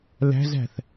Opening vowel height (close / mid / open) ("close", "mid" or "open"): open